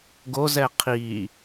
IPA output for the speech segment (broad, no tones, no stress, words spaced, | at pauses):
ɡozɛ qʰi